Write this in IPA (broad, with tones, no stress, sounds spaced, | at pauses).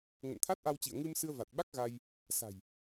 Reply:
ŋ ə̰˧˨ n t̪ʰ a˦˥ t̚ ʔ a˧ w t͡ɕ ḭ˧˨ ə̯ ŋ ɨ˧ m s ɨ˧ ə̯ v a˨˩ t̚ ɓ a˦˥ k̚ ɣ a˧ j | s a̤˨˩ j